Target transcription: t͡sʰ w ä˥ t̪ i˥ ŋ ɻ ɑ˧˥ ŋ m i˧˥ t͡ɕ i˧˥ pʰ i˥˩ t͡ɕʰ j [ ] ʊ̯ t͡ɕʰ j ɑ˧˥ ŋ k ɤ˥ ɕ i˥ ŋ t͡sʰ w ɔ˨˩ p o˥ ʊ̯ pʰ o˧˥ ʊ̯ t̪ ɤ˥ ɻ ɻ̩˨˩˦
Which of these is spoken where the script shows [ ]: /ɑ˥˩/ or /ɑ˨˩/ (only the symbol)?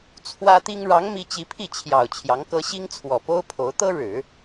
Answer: ɑ˨˩